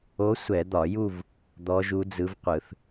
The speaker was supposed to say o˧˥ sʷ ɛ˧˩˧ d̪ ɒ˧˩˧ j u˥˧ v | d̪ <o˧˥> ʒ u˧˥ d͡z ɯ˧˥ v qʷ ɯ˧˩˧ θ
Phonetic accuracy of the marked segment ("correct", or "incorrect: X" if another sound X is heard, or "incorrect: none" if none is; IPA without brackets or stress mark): incorrect: ɔ˧˥